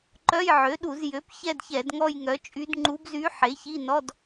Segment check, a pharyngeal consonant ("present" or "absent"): present